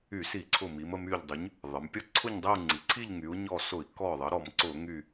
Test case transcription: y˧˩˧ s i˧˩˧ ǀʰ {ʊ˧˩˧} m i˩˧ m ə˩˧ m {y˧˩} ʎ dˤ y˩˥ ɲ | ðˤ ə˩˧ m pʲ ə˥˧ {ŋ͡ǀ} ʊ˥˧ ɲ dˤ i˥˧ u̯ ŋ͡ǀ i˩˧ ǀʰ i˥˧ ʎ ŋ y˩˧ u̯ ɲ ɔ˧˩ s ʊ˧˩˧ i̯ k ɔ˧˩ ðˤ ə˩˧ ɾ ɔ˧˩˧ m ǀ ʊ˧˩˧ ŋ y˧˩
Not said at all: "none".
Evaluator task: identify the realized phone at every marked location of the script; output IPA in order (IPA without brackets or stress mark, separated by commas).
ʊ˧˩, y˧˩, ǀʰ